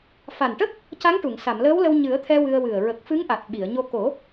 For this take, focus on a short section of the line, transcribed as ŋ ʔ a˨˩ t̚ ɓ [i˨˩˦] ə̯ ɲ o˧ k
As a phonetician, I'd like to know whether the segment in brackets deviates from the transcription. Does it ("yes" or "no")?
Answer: yes